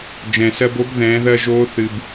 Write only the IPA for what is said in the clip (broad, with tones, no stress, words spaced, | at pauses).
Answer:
d͡ʒɛ̃˩sɜ˧bo˧˥b ðɛ̃ː˩˧ðɜ˧ ʒoː˧˥ θɨː˩b